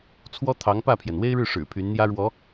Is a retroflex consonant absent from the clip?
no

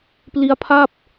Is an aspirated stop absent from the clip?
no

